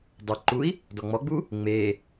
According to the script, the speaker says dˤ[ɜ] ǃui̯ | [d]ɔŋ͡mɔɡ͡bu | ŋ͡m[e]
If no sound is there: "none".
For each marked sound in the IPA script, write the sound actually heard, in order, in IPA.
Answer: ɜ, d, e

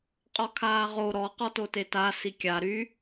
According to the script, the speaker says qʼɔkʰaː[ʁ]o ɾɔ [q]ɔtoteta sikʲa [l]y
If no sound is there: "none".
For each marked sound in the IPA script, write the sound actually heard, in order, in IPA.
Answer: ʁ, q, ɾ

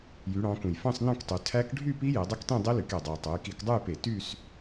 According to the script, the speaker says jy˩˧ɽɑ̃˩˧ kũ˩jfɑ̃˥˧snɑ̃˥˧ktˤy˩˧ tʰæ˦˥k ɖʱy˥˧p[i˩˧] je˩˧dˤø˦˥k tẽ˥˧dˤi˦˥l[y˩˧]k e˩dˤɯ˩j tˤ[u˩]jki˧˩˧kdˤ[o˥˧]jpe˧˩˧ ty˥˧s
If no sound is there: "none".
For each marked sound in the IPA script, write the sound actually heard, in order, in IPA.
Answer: i˦˥, y˩˧, u˩˧, u˥˧

